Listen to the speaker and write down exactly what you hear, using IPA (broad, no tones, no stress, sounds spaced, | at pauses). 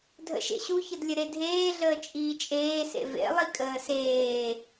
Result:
dʱ ə̰ ʃ ḛ ɕ u ç ə d lʲ ə ɾ e dʱ eː ɮ əː t͡ʃʼ iː t͡ʃʼ eː s ḛ v ḛ lˠ i kʼ əː s eː